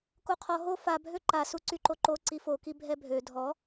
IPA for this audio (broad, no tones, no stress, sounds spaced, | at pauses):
k o qʰ ɔ ɦ o f a bʱ ø ǃ a s u ǀ y ǃ o ǃ o ǀ i f o k i bʱ ɛ bʱ ø dʱ ɔ